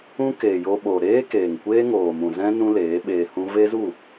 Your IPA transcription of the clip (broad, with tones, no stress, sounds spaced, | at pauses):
ũ˦ k eː˨ j o˧ ɓ o˨ ɾ eː˦ k eː˨ ŋ kʷ eː˦ ŋ oː˨ m ũ˨ z ɛ̃˦ n ũ˦ l eː˨˦ ɓ eː˧ h ũ˦ v e˦ z u˦˨